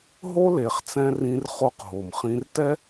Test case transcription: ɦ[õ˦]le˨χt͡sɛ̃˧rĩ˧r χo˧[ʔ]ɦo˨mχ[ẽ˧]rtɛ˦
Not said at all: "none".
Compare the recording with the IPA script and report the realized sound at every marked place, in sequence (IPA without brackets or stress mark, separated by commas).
o˦, q, ĩ˧